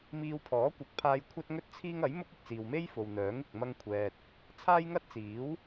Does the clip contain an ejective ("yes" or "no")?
no